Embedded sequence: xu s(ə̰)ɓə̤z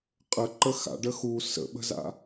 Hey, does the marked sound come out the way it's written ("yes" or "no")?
yes